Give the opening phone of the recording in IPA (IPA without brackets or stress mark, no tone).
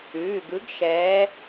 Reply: ʉː